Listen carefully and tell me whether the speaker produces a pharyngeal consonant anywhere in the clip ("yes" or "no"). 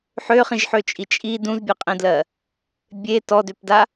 yes